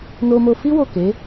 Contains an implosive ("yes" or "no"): no